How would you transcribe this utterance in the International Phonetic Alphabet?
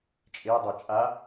t͡ʃʼ e dˤ e t͡ʃʼ a

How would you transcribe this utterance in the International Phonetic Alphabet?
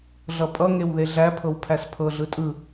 ɮ ʌ pʼ ʌ ŋ e w ð e ɮ æ pʰ ɤ w pʰ æ s pʰ ɤ ɮ ɯ tʼ ɯ

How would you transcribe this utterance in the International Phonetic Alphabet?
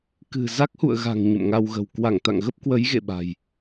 k ɨ̤˨˩ z a˦˥ k̚ h ṵ˧˨ ə̯ ɣ a̤˨˩ ŋ ɲ ə̰˧˨ m ŋ a˧ w ɣ ə̤˨˩ w k w a˧˩ ŋ t̪ a̰˧˨ ŋ ɣ ə˦˥ p̚ k w ə˨˦ j ɣ ḛ˧˨ ɓ a̤˨˩ j

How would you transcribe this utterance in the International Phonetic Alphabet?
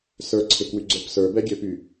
s ə˞ ǀʰ e k w y ɡ͡ǀ ə˞ p s ə˞ b ɛ ɡʲ ø p y

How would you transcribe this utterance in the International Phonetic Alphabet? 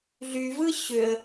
ɮ y v ɯ ɕ ø ə̯

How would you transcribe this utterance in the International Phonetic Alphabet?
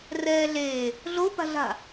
r ɛː ɮ eː | ɮ o p a̤ ɮ a̤

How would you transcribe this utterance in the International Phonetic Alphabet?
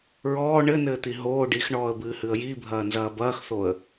ɹ ɔː ɳ ɘ n ɘː t̪ i ɦ oː ɖ i x ɳ ɔː ə̯ b ɨː h ɨ ə̯ j i bʱ ɐː n z ɐː b ɐː x θ o ə̯

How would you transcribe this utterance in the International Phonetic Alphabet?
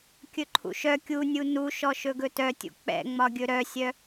kʲ ɵ ǃʰ ṵ ʃ œ kʲ u nʲ u n u ʃ ɔ ʃ ɵ ɡ ɵ t œ tʲ ṵ k͡p ɛ̰ ŋ͡m ɒ ɡʲ ɵ ɾ œ sʲ œ

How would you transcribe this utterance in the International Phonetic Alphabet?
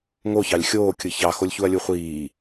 ŋ o ç ɑ lʲ xʲ oː kʲ ɯ ç ɑ x o lʲ ç u ɐ̯ lʲ u χʷ iː

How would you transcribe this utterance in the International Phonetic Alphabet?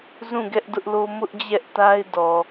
z ũ˦˨ ɡ ɛ˦ ʔ d ʊ˦ ʔ l o˦ m ʊ˦ ʔ d͡ʑ ɛ˦ ʔ t a˦ ɪ̯ d ɔ˨

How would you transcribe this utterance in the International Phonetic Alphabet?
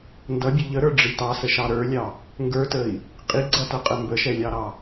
n d ʌ bʲ ə ʎ ə ɾ ə˞ ɖ͡ʐ i t ɑ s ə ʃ ɑ ɾ ə˞ lʲ ɑ | ŋ ɡ ə˞ t ə i̯ | qʼ i ɡ͡ǀ ʌ t ʌ qʼ ə m b ə ʃ ɛ lʲ ɑ ɾ ɑ

